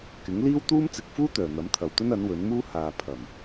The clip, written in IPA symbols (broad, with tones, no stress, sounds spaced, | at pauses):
k ɪ˨˥ ŋ l iː˥ w t̪ uː˥ m t͡s ɪ˨˥ k̚ f uː˥ t̪ œː˨ n̪ ɐ˨˥ m t̪ʰ ɐ˨˧ w t̪ ɵ˥ n ɐ˨˥ n w ɵ˨˥ n m uː˥ h aː˨ pʰ ɐ˨˩ m